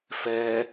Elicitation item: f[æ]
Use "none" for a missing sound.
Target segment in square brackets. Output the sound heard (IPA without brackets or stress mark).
ɛ